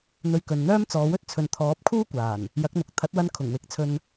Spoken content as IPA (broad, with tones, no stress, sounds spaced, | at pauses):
n̪ ɵ˧ ɥ k ɵ˨ n n̪ œː˥ m t͡s ɔː˨˧ w ɵ˥ t̚ t͡sʰ ɵ˨ n t̪ʰ ɔː˨˥ p̚ kʰ uː˥ kʷ aː˨˩ n | j ɐ˨˥ k̚ n̪ ʊ˨ k̚ t̪ʰ ɐ˨˥ t̚ w ɐ˧ n kʰ ʊ˨˩ ŋ w ɪ˨˥ k̚ t͡sʰ ɵ˧ n